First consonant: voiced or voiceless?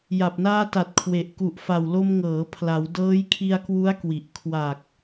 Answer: voiced